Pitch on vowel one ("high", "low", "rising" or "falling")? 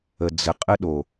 low